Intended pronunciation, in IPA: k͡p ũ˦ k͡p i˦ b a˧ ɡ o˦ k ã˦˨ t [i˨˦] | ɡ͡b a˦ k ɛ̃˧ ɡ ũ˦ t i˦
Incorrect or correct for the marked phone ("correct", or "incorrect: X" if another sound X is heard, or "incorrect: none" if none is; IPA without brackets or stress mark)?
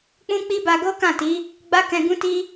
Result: correct